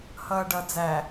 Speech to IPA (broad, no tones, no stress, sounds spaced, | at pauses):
h ʌː ɖ ʌ d͡z æ